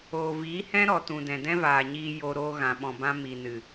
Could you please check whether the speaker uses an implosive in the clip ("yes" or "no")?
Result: yes